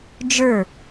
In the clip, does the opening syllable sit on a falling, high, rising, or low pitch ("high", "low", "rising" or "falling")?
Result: falling